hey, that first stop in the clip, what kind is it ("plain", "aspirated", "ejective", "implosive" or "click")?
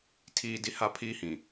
aspirated